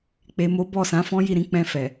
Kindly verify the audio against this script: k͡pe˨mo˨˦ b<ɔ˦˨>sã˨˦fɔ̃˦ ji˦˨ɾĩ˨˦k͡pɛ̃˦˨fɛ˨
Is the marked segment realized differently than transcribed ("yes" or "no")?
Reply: no